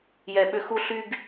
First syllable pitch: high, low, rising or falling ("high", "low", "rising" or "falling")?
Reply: high